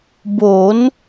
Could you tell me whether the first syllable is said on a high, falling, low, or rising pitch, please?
rising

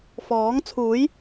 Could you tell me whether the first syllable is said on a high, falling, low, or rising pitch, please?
rising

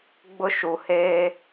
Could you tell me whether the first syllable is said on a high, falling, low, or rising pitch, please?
high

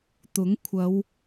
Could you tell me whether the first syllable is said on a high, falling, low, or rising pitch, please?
rising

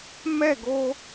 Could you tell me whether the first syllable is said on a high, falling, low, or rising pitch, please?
falling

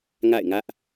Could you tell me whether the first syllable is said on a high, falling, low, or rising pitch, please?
falling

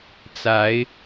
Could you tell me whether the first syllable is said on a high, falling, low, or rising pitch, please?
rising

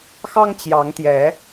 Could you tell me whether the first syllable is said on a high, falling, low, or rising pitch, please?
high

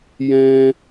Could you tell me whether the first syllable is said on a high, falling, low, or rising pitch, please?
high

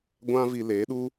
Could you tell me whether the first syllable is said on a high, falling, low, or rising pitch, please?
high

